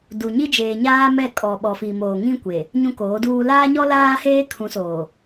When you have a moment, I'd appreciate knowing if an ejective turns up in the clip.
yes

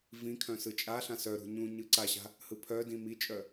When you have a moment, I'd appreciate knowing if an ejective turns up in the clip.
yes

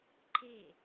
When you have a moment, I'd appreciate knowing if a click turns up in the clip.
yes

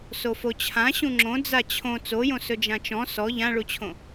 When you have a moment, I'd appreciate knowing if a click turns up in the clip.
yes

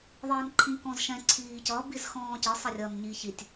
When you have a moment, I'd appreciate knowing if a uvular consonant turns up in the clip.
no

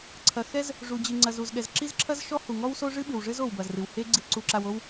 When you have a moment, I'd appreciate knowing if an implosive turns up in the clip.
yes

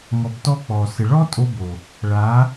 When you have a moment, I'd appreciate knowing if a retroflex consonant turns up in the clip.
yes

